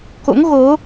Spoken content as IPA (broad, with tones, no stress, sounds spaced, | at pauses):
k o̰˧˥ ŋ ɣ o˨˦